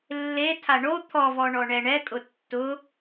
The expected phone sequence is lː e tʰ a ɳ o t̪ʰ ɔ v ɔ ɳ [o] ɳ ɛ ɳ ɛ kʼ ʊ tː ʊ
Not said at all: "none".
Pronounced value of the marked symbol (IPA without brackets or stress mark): ɔ